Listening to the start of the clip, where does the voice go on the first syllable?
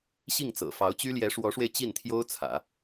falling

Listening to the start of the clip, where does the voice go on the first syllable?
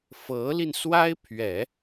rising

